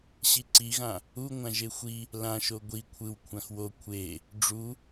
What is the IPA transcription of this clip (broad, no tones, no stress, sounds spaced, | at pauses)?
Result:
ɕ i ǀ i ɣ ã | u ŋʷ ã ʒ e xʷ i | l ã ʃ o ɡʷ i kʷʰ ɯ w kʷʰ ã x w o kʷʰ e | ɖ͡ʐ u